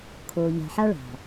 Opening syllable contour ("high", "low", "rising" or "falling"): low